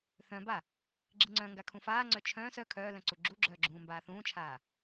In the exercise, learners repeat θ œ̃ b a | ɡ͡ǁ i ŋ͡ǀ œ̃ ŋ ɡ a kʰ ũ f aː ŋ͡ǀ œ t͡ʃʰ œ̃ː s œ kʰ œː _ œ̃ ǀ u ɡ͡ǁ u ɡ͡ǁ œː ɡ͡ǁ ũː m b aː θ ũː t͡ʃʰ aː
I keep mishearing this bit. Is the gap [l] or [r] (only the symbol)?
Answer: l